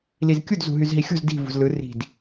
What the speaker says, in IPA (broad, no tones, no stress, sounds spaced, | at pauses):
l i z kʲ u d z ṳ ɦ y z ɦ i xʲ o̤ z d i̤ v ṳ z l ɯ r i̤ d